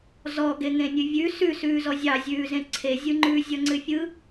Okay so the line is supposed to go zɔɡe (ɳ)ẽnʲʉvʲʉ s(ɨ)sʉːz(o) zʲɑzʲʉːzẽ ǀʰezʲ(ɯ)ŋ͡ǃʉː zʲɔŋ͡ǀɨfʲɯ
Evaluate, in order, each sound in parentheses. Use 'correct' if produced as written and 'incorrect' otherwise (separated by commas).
incorrect, incorrect, incorrect, correct